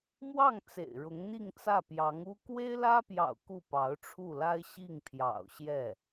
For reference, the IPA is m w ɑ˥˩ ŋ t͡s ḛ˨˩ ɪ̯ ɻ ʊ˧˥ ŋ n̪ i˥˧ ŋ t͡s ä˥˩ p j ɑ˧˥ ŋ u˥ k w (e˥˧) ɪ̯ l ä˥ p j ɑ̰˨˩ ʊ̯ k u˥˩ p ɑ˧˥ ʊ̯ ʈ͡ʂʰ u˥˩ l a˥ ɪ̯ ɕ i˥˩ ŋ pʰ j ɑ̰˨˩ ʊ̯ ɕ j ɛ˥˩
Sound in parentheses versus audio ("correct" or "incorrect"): incorrect